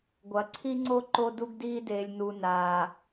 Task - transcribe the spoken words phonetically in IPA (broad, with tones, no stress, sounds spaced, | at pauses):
ɡʷ ɐ˨ ǀʰ i˦ ŋ͡ǀ o˦ ǃ o˦ d u˦ ɡ d iː˦ d eː˨ lʲ n u˨ n aː˨